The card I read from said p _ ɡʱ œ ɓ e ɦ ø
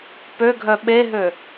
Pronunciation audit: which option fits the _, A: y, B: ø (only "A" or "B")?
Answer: B